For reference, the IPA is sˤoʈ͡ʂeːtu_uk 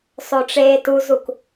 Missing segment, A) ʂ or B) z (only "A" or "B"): B